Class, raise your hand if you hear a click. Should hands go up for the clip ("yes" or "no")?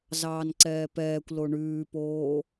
yes